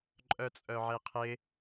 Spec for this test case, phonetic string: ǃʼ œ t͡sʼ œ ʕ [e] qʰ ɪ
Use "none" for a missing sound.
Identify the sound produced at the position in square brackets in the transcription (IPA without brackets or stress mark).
e